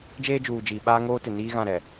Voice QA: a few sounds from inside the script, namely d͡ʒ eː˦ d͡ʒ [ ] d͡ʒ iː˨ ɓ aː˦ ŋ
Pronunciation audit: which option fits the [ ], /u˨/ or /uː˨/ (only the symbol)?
uː˨